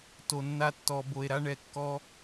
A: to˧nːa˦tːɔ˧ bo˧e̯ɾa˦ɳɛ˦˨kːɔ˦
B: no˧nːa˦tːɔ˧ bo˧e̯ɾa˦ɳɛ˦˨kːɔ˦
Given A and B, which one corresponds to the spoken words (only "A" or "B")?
A